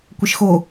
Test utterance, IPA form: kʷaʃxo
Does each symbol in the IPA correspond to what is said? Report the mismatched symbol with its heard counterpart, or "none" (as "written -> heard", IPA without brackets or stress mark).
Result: a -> ə